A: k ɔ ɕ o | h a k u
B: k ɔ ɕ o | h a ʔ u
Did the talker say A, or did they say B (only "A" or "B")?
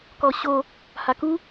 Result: A